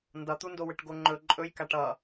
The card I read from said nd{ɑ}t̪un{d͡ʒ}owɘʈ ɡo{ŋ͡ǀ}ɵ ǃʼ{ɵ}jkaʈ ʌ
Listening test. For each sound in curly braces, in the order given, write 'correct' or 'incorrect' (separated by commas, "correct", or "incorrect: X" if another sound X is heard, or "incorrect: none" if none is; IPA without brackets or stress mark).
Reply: incorrect: ʌ, incorrect: d, incorrect: ŋ͡ǃ, correct